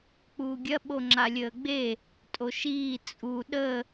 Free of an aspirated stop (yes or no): yes